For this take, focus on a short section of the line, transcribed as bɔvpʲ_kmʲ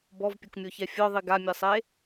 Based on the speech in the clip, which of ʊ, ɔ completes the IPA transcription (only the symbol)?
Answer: ʊ